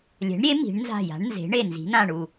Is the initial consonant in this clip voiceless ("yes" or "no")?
no